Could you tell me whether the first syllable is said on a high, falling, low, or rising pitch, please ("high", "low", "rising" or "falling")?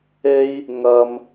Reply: high